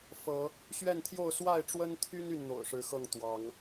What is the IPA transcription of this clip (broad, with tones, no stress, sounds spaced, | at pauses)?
f ɤ˨˦ | ɕ ɥ ɛ˥˨ n t̪ʰ j o˥˨ ʊ̯ s w a˥˨ ɪ̯ ʈ͡ʂ w ə˦ n t̪ʰ y˦ n y˥˨ n n̪ o̰˨˩ ʊ̯ ʂ ɻ̩˨˦ x ɤ˥˨ ŋ t̪ w ɑ˨˦ ŋ